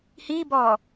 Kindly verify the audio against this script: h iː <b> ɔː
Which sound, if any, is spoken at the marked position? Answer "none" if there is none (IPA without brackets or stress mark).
b